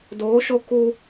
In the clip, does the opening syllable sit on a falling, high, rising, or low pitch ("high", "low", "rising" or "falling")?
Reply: rising